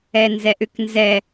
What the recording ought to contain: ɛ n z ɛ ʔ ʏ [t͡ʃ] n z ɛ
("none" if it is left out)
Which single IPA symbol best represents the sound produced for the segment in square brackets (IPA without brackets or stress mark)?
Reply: k